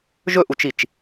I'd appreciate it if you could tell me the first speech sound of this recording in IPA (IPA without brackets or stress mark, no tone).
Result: ʒ